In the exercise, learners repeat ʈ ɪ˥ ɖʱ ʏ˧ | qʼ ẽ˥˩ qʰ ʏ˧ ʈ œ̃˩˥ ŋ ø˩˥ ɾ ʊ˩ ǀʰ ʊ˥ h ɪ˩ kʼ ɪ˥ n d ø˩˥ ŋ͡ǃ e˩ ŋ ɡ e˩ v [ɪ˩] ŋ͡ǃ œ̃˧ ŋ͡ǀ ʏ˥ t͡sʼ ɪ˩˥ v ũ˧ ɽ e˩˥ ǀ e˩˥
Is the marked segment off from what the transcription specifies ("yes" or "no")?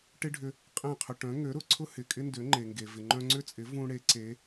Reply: no